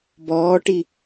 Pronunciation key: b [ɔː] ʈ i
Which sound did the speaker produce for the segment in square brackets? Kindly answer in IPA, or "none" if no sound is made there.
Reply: ɔː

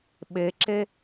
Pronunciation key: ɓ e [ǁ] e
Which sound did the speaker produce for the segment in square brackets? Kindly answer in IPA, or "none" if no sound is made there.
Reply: ǁ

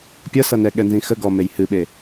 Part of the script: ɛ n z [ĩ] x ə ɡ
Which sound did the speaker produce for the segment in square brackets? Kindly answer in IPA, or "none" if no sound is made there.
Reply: ĩ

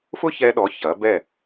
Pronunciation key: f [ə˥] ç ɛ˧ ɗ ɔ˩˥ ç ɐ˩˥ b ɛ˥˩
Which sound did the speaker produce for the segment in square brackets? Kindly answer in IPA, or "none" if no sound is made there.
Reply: ʊ˥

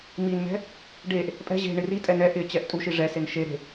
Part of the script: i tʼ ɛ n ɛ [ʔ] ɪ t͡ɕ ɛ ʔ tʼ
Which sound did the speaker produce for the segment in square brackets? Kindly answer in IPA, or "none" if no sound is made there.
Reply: ʔ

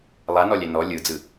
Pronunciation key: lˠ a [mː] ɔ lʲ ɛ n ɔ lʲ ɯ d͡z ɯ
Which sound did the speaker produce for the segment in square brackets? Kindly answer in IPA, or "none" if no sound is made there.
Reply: n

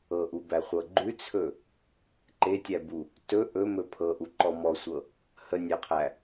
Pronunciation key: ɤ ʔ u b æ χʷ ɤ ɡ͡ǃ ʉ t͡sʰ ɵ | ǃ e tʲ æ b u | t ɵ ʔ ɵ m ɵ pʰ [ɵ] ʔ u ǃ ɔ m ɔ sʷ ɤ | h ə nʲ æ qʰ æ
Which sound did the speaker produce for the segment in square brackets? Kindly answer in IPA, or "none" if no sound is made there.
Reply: ɤ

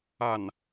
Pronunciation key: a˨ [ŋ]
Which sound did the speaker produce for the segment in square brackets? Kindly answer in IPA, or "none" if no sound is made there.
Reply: n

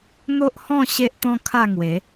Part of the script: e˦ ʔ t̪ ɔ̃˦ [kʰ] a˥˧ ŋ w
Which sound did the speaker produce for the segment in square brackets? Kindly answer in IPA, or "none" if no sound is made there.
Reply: kʰ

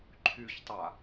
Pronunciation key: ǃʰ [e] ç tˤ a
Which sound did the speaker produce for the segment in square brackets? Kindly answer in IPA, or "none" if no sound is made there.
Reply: y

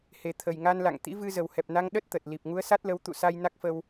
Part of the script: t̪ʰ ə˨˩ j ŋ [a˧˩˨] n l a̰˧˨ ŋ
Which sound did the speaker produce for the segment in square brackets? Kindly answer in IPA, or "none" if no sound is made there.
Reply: a˧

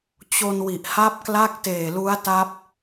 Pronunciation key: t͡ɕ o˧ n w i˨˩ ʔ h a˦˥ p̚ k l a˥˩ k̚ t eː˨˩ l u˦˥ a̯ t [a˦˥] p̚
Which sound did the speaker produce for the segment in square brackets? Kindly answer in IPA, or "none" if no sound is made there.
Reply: a˦˥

